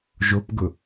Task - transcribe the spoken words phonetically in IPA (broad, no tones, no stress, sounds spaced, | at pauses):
ʒ o p ɡ ʊ